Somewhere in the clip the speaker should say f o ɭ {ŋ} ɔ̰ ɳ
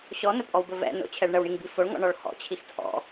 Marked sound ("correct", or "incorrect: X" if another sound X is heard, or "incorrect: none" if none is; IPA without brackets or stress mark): correct